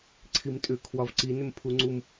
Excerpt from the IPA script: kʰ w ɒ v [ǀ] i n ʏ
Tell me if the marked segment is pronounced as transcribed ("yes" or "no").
yes